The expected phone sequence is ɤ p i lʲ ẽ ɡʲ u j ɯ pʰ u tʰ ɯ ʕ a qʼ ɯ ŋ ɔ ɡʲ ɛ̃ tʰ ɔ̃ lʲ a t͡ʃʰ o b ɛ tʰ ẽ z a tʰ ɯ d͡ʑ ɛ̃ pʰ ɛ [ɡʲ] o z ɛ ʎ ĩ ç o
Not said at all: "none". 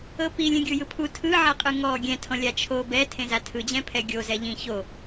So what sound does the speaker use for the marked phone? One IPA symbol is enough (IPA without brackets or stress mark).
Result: ɡʲ